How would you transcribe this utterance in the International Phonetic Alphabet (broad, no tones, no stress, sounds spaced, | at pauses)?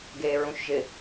ɡ eː ɹ ũ ʃ ʒ ɪ